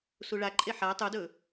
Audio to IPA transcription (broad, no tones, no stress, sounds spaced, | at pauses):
s u ɭ a ǃʼ e ħ a tˤ u d ɵ